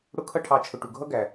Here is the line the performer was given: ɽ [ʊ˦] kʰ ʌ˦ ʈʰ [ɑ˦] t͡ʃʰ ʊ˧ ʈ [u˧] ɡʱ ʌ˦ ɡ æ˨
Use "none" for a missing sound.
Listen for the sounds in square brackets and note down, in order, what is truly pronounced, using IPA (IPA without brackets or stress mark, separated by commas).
ʊ˦, ɑ˧, u˨